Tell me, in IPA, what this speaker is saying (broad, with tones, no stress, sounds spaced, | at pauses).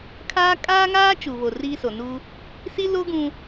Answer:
kʰ aː˦ kʼ aː˦ ŋ aː˦ t͡ʃ u˨ β o˨ r i˦ s o˨ n u˦ | s i˦ l o˦ ɡ ũ˦